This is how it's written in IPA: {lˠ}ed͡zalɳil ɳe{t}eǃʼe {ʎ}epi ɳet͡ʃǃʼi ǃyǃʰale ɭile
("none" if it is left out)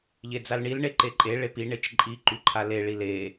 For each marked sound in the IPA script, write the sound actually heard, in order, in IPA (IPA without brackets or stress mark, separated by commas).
ʎ, ǃ, ɭ